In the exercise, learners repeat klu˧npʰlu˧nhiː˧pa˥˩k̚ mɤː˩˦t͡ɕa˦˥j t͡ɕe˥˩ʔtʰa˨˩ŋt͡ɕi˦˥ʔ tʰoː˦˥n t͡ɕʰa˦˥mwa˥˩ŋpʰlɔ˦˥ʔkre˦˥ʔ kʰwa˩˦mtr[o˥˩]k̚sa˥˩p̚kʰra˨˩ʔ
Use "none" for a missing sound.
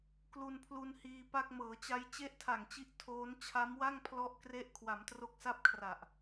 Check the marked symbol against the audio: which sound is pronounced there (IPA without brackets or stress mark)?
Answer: o˦˥